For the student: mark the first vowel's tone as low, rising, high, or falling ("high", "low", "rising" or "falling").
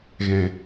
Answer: low